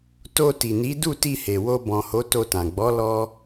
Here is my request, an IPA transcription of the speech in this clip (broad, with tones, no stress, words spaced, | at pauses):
to˧ti˨ni˨˦ du˦˨ti˧he˨ wo˧bɔ̃˨ho˨˦ to˧tã˨ ɡ͡bɔ˨˦ lɔ˦